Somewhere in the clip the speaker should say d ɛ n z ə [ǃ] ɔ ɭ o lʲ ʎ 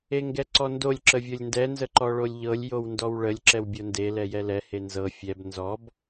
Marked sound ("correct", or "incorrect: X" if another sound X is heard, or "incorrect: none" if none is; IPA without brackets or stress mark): correct